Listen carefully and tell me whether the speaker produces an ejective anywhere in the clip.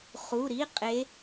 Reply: yes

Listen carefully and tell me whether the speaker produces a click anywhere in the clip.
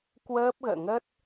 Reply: no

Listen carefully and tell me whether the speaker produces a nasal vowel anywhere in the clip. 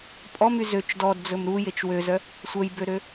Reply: no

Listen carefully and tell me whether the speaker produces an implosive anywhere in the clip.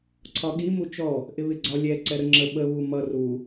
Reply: yes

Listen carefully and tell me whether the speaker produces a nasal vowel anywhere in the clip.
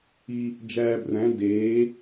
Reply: yes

